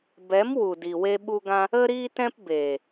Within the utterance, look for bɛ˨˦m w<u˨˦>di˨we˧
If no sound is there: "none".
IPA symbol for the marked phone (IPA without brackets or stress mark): u˨